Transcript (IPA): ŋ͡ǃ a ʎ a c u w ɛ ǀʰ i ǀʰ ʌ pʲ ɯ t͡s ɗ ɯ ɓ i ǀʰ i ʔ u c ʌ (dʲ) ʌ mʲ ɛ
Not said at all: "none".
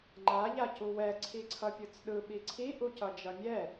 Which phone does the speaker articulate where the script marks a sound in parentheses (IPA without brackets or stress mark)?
d͡ʒ